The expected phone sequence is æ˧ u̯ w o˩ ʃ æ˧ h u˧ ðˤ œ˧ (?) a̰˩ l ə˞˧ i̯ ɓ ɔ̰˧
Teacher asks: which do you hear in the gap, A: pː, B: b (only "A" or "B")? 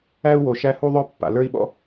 A